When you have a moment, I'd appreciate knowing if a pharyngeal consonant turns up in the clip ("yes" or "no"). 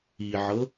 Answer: yes